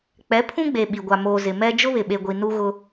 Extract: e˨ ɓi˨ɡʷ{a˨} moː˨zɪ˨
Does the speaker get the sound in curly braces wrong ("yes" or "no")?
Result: no